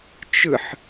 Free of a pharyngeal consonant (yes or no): no